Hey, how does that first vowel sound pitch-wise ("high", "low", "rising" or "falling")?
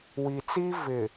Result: low